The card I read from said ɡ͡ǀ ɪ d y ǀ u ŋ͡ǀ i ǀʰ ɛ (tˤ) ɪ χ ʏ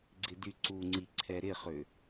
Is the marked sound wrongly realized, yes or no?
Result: yes